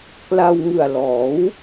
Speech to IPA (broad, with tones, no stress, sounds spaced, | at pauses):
k l a˧ w ŋ ɯ˨˩ a̯ l ɔː˩˦ w